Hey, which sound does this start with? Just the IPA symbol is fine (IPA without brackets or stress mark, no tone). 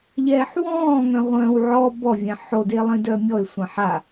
ʎ